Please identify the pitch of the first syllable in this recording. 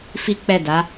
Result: high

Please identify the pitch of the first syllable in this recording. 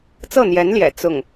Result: falling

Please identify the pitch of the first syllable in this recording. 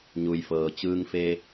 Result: low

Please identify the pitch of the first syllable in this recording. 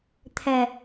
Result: low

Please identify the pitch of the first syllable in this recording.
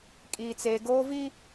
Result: high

